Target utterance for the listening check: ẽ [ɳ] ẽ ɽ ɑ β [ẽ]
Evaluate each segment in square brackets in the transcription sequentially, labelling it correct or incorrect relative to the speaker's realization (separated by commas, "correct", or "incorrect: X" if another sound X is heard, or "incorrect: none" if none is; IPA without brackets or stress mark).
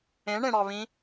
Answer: correct, incorrect: ĩ